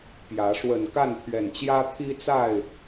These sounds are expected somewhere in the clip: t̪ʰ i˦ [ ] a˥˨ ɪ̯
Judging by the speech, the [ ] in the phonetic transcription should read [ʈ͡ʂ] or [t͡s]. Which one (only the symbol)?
t͡s